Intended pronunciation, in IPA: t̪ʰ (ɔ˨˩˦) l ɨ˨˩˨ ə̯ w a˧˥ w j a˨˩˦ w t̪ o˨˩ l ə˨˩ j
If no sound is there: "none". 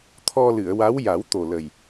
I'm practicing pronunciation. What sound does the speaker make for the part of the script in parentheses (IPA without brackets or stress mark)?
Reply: ɔ˧